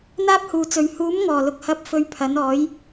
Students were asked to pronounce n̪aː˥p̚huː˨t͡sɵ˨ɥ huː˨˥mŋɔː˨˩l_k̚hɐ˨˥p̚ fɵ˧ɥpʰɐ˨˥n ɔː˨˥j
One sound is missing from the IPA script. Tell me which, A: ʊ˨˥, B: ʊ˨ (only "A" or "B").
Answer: B